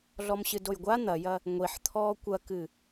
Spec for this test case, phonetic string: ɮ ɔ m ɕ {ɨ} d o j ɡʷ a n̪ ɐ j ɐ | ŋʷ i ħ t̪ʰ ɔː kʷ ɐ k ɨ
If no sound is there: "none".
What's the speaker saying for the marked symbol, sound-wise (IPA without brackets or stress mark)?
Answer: ɨ